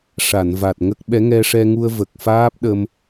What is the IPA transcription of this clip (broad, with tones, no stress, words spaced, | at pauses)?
ʂa˨˩˨nva˨˩t̚ŋə˦˥k̚ɓɛ˧˥ ŋɛ˧ʂɛ˧ŋu˧ə̯ və˨˩k̚faː˦˥p̚ ɗə˧m